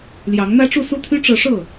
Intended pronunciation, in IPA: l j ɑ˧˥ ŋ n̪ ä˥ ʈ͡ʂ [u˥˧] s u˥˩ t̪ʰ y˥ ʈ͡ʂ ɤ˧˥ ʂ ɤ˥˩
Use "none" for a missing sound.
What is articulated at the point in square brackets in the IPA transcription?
u˥˧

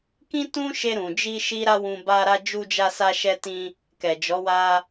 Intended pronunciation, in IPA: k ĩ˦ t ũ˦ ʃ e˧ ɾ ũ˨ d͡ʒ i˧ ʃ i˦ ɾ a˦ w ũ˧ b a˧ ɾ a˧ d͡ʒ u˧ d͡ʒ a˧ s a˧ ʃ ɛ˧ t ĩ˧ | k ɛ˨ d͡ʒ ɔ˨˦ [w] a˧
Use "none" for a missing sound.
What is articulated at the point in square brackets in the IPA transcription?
w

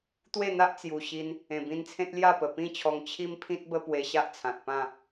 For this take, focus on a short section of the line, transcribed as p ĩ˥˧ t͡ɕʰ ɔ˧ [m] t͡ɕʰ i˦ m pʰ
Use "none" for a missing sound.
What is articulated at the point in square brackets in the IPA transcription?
ŋ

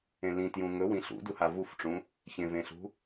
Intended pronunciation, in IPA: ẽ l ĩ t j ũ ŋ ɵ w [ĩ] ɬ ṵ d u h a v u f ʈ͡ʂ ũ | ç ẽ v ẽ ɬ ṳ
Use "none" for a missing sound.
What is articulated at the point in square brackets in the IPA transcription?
ĩ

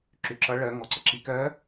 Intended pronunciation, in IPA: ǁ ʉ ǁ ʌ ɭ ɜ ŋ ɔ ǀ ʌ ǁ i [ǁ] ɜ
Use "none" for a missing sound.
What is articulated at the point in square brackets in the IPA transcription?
k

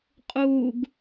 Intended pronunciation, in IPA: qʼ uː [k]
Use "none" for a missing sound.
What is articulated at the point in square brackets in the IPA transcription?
ɡ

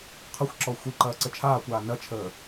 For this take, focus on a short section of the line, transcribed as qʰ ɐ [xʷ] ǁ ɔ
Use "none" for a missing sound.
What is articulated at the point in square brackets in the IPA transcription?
xʷ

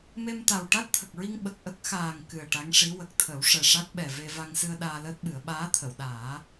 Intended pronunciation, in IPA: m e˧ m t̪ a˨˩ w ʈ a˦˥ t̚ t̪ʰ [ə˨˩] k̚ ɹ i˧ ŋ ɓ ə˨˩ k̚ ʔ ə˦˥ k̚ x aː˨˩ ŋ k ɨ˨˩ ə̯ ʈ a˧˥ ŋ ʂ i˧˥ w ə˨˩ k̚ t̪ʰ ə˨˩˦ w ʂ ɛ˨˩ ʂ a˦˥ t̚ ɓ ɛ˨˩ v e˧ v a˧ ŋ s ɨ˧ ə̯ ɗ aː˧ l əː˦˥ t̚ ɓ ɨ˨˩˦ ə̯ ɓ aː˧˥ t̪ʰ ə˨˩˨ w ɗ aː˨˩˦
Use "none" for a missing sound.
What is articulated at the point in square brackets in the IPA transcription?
ə˨˩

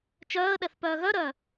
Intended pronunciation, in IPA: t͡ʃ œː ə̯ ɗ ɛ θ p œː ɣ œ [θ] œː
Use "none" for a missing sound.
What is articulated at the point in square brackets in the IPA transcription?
ɾ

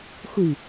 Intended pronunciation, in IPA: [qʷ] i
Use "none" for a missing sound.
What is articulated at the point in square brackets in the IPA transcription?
xʷ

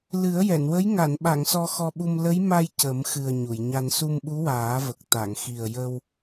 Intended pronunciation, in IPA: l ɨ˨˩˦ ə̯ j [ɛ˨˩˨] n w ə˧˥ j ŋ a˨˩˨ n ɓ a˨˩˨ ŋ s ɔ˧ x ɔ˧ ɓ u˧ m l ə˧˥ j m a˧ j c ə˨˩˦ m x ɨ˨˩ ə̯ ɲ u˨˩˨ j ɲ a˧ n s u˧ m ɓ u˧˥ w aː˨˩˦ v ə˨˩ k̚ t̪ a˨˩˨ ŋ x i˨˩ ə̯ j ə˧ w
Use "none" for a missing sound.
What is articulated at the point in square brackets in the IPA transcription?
ɛ˨˩˨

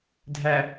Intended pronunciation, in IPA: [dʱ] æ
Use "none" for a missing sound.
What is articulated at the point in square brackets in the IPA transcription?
dʱ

